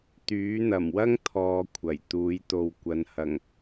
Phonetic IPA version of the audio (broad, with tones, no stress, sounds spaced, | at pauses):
t̪ yː˨˥ n̪ ɐ˨˩ m w ɐ˥ ŋ t̪ʰ ɔː˧ kʷʰ ɐ˨˩ j t̪ uː˨˥ j t̪ o˨ w kʷ ɐ˨˧ n h ɐ˨˩ ŋ